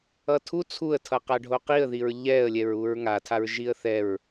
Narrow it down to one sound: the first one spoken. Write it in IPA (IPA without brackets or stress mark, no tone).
ʌ